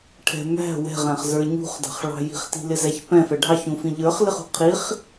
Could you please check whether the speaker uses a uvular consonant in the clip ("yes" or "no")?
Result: yes